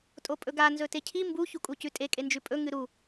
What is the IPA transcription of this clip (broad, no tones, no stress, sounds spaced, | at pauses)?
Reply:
tʼ o pʼ ɵ ɡ a n z ɵ t e cʰ i m b u ç u kʼ u c ʉ tʼ e kʼ e n d͡ʒ ʉ pʼ ɵ ŋ ɨ ɾ u